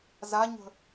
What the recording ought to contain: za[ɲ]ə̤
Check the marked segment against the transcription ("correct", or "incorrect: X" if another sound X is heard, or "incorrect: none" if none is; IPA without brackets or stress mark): correct